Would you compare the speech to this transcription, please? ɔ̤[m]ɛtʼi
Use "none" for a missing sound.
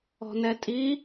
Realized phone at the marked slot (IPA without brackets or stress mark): n